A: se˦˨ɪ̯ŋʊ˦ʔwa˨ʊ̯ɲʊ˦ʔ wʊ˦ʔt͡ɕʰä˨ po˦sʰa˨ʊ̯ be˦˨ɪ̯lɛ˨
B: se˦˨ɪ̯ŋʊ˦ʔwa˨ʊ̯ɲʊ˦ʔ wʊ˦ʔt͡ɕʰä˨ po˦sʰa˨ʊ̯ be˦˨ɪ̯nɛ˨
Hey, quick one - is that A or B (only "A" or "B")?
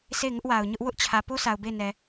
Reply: B